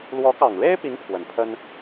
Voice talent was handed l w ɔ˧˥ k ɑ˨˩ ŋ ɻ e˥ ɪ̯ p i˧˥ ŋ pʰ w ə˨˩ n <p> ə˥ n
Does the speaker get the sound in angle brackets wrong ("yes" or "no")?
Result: yes